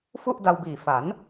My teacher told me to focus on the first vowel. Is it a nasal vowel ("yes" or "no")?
no